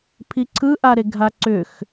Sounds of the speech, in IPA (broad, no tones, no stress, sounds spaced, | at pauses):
pʰ i ǀʰ ɯ ʔ a ɾ e ɡʱ a ǀ ʏ x